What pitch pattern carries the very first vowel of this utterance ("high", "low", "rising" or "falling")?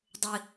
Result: high